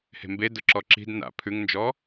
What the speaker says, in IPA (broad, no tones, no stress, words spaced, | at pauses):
he̤mbedʊ ǁɔǁi̤d na̰ pʰʉŋnd͡ʒɔ